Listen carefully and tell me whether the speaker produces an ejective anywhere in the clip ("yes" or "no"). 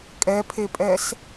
yes